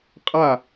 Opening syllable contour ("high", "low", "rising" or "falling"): falling